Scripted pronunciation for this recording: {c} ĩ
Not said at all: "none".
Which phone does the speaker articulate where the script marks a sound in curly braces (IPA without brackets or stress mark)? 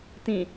t